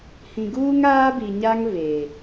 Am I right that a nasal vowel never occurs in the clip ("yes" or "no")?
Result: no